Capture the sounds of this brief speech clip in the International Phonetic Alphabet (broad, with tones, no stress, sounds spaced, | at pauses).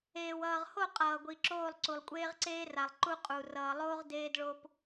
eː˨ w ʌː˨ ʁ h o˦˨ qʼ ʌː˨ ɡʷ i˨ ǁ oː˦˨ lˠ ǀ u˨ lˠ kʷʼ eː˦ ʁ ǀ eː˦ r a˨ lˠ ǃ u˦ qʼ u˨ r ʌː˨ lˠ oː˦ ʁ d eː˦ d ɭ o˦ p